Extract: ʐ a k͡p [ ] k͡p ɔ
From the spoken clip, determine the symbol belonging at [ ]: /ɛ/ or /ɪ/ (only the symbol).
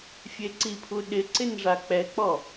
ɛ